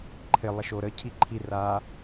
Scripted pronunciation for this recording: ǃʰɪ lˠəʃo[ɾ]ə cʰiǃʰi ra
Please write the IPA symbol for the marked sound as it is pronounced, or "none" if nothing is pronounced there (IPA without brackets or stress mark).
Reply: ɾ